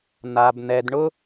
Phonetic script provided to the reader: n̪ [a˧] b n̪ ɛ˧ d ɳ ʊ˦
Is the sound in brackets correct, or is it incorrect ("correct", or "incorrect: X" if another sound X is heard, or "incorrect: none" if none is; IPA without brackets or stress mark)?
correct